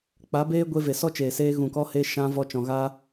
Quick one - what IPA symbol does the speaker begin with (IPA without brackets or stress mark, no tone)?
k͡p